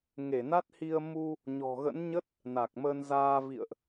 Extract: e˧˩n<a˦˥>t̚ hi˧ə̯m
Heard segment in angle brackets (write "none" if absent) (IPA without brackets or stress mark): a˦˥